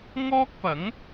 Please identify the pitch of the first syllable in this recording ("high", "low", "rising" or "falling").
high